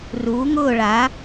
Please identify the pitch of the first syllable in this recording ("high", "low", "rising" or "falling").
rising